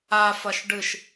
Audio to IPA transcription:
afɐʃ ɖɨʃ

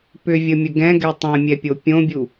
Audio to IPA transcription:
pʏvʲəmʲə ɡɛ̃ɡɛ tˤɛ̃mʲɛpʲo pʲõbʲu

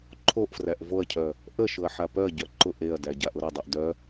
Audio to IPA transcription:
ǃʰoʔfræʔ voɐ̯cʰœ | ʔəʃʊɐ̯ ħapœɐ̯ɟœ ǃʊʔ eɐ̯dæ ɟaʔʊɾʊdˤœʔ dœ

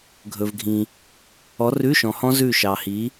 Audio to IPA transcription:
ɡʱɵ˨vɡʱĩ˨ | ɔ˨˥rʉ˧˥˧ʃɔ̃˨hɔ̃˦˥ zʉ˦˨ʃɑ˨hi˨˥

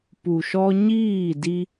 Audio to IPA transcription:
pu˨ʃɔ˧ɲiː˦˨di˧

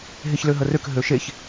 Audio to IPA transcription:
ɦeçløɦərøk ɦøʃeç

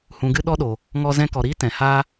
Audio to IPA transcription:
hũ˨ɡɨ˧ ɗɔ˦ɗo˨ | ŋɔ˧zɛ̃˧kɔ˨ɾiː˦ tɛ̃˨ha˦

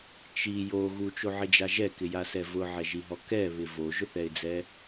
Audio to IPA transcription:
t͡ʃi jo ɣut͡ʃoʕɪd͡ʒa ʒɛkɪjasɛ vʊʕɛʒiɦɔ kɛβɪ voʒʊθɛɪ̯d͡zɛ

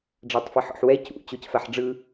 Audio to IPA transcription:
ɖ͡ʐatˤfiħɔ̰ħwɛ cṵ t͡ɕocfaħɖ͡ʐɯ

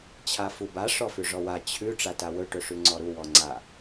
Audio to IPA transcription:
t͡ɕʰafuba ʂɔfʉʐɔwa t͡ɕʰʉ ʈ͡ʂatawɵ ʈɵʂʉŋ͡ǀɔɾu wɔŋ͡ǀa

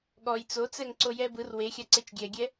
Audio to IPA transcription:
ɠɔj t͡sot͡sɛŋ ǀojɛbɯr wexʲaǀet͡ʃ ɡʲɛɡʲɛ

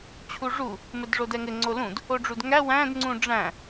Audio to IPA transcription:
t͡ɕʰuʐu | mɘdʐodɛŋɘ ŋ͡ǀolũd | oɖ͡ʐudŋæ wæ̃d ŋ͡ǀũɖ͡ʐæ̃

